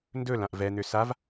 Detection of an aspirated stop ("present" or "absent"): absent